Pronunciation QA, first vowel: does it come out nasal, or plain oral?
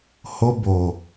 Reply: oral